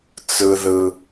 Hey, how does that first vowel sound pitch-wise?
low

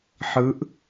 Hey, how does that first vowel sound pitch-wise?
rising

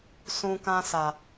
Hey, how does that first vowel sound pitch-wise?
low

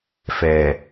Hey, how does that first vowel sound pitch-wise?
low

